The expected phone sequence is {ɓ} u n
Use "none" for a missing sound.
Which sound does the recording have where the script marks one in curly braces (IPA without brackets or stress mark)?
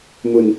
m